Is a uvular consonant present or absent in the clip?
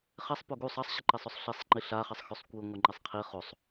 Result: present